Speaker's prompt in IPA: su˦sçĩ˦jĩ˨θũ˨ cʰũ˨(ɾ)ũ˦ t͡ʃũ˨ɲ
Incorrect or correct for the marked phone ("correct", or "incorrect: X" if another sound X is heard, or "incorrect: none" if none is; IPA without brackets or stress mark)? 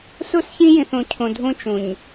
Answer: incorrect: dʱ